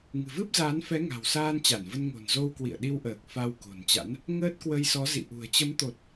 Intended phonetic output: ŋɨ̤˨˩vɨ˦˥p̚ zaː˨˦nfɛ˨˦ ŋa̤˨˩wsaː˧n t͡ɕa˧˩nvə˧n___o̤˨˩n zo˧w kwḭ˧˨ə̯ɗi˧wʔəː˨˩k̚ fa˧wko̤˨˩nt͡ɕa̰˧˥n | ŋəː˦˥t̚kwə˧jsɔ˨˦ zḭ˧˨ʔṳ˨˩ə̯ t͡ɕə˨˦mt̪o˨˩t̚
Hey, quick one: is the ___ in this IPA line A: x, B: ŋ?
B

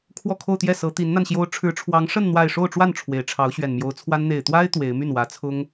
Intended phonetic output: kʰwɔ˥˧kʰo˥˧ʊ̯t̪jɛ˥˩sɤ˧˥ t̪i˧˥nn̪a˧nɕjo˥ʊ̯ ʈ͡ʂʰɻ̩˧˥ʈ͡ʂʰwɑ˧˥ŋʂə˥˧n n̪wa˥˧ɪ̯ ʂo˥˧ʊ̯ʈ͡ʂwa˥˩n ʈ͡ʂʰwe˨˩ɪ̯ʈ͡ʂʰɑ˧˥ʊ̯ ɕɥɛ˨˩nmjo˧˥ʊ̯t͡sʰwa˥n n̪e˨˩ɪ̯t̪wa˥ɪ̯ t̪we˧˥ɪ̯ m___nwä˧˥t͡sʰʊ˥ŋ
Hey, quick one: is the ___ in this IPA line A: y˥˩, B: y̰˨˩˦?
A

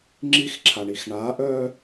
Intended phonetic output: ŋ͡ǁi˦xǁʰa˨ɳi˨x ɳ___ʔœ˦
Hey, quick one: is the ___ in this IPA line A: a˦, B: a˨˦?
B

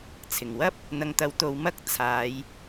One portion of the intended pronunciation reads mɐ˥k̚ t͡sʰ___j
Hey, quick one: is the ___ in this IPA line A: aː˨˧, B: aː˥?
A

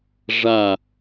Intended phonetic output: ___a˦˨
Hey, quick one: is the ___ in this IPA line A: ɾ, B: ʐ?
B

